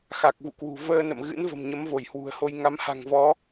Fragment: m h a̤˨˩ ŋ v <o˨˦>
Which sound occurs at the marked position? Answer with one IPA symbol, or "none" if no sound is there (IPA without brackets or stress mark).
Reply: ɔ˨˦